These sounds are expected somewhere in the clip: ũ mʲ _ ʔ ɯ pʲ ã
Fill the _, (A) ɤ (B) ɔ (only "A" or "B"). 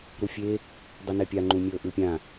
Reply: A